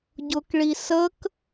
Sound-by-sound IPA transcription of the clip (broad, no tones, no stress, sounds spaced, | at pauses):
ɟ ʊ k ɭ i s ə k